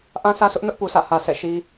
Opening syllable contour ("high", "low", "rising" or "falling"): high